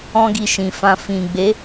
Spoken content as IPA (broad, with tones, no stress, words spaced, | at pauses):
ɔ̃˦ɡi˧ʃĩ˨fã˧ fĩ˨ ɡ͡be˨˦